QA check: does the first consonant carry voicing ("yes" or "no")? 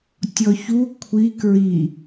no